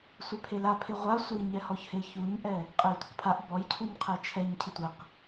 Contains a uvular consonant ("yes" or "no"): yes